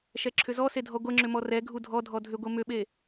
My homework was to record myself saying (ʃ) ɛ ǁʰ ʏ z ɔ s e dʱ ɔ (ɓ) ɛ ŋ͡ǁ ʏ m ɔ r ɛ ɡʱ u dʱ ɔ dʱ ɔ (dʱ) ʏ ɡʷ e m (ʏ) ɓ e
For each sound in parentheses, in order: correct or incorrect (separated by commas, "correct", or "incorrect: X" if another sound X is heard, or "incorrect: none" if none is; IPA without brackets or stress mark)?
correct, incorrect: ɡʷ, correct, correct